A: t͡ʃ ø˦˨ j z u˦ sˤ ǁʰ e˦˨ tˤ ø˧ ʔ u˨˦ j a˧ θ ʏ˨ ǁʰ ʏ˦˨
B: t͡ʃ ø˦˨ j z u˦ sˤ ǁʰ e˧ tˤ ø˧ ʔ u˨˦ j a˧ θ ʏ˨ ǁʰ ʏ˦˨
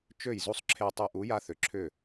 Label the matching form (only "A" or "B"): B